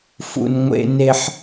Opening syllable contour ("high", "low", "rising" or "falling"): high